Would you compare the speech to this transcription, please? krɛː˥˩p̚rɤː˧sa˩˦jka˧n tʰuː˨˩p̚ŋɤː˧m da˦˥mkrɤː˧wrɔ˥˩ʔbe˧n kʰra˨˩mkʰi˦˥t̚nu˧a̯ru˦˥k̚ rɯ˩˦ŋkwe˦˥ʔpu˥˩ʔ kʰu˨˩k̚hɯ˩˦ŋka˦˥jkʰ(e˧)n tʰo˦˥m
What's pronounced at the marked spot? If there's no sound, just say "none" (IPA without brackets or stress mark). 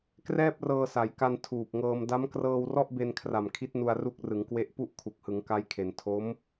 e˩˦